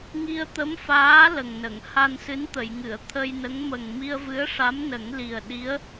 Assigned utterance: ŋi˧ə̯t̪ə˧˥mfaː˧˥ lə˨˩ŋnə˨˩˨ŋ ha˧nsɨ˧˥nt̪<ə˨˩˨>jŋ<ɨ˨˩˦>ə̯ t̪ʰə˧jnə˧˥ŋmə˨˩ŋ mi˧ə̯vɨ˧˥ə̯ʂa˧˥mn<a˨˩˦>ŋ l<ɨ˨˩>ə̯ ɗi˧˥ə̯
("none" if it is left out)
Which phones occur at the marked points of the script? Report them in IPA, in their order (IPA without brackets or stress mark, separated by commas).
ə˨˩˨, ɨ˨˩˨, ə˨˩˦, i˨˩